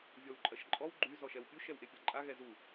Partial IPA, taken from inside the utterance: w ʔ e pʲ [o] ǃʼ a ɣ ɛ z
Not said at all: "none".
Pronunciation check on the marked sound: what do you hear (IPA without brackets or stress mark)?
ɔ